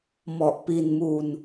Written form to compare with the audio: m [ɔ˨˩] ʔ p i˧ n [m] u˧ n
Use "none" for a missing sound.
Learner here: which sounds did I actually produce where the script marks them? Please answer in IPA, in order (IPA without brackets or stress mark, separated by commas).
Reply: ɔ˨˩, m